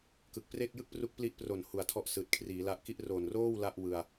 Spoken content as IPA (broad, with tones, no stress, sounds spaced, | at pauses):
k ɯ˨˩ k̚ p r eː˥˩ k̚ j ɯ˥˩ k̚ p r u˦˥ k̚ p l i˦˥ ʔ p r o˨˩ n h u˨˩ a̯ tʰ ɔ˦˥ ʔ s ɯː˨˩ t̚ kʰ r iː˩˦ l a˦˥ ʔ k i˥˩ ʔ r o˨˩ n r oː˥˩ w l a˥˩ ʔ w ɯ˧ a̯